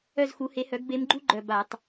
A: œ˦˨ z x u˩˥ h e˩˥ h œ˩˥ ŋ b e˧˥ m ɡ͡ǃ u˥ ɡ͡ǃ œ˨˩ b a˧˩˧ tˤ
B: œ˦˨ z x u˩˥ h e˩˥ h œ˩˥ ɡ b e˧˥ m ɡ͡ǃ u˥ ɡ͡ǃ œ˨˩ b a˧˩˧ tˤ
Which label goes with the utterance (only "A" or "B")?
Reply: B